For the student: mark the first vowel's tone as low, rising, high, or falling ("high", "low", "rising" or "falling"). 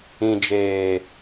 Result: low